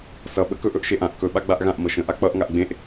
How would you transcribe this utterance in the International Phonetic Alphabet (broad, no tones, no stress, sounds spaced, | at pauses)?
s ʌ ɓ ə k ɵ ʔ ɵ ʔ ʃ e ʔ ã ʔ k ɵ ɓ a ɡ͡b a ʔ ɣ ã ʔ m ɤ ʃ ə̃ ʔ a k͡p ʌ ʔ ŋ a ʔ ɡ͡b ẽ ʔ